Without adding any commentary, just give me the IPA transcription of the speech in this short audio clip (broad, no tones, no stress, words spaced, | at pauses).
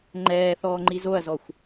ŋ͡ǃɛːθɔːŋ͡ǃi zoɐ̯zɔxʷ